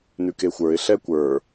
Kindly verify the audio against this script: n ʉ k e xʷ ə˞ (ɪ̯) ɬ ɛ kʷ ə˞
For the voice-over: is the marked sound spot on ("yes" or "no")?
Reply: yes